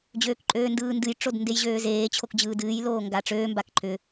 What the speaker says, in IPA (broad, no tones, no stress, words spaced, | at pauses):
d͡ʑøːkǃʼøːndɯːndɨj ʈ͡ʂodndejʑøːzeː t͡ɕʰokd͡ʑɯːdɨːj loːŋɡaʈ͡ʂøː mbakǃʰʏ